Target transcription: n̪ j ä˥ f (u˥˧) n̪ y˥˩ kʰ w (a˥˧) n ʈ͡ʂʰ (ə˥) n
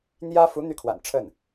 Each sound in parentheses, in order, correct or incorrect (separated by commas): incorrect, incorrect, incorrect